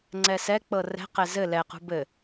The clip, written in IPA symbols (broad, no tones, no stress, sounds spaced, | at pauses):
ŋ͡ǀ ɛ s ɛ k͡p ɤ r ɛ̤ q ɛ z ɘ l ɛ q ṳ b ɘ